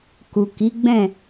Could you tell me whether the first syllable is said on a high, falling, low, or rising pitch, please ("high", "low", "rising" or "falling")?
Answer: low